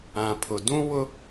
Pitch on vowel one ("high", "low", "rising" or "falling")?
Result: low